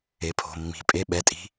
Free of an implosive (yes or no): no